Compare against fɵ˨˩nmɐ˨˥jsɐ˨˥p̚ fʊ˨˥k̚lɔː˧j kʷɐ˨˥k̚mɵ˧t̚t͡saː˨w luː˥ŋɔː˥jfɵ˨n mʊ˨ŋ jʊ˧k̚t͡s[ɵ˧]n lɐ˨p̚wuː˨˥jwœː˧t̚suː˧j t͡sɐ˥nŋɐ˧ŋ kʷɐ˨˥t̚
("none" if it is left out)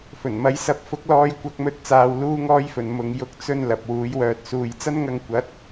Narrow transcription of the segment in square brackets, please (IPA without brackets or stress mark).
ɵ˧